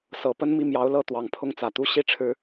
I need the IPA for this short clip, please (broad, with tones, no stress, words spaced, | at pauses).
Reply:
sɤ˨˩pə˥n mi˥˩mjɑ˧˥ʊ̯lɤ˥˩t̪wɑ˨˩ŋ pʰʊ˥˩ŋt͡sä˨˩t̪u˥ ɕi˥ ʈ͡ʂʰɻ̩˥